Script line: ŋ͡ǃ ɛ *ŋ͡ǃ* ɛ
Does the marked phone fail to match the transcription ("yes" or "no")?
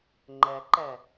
yes